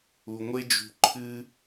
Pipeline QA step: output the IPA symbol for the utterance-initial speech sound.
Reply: u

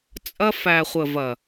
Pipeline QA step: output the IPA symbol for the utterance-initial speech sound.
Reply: t͡sʼ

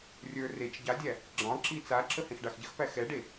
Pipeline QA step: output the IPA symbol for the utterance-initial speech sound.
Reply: rʲ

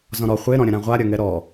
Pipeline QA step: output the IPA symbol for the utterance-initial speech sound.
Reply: z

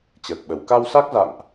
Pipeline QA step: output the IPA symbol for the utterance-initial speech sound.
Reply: t͡ɕ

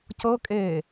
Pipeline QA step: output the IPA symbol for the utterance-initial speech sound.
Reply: c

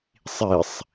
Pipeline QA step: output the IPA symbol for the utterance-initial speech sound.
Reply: sˤ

